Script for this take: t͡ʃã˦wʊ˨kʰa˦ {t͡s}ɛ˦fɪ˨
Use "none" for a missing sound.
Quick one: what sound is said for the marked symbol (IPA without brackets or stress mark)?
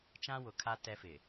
t